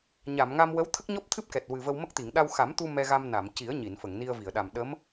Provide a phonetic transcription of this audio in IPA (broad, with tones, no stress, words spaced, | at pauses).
ɲa˨˩˨mŋa˧m wə˧˥wt̪ʰə˦˥k̚ɲɔ˦˥p̚t̪ʰɨ˦˥p̚ kɛ˨˩t̚ wɨ˨˩və˧wmə˦˥k̚t̪i˨˩˨ŋ ɗa˧wxa˨˩˦mt̪u˧ mɛ˧ɣa˧mna˨˩˨mci˨˩˦ə̯ ɲi˨˩˨nfə˨˩˨ŋni˧ə̯vi˨˩˨ə̯ ɗa˨˩mɗə˧˥m